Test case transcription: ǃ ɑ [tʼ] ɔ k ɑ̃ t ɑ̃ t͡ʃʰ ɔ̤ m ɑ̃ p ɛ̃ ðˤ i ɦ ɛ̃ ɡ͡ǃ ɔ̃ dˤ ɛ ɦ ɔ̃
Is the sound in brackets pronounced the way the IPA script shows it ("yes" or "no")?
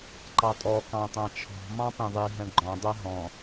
yes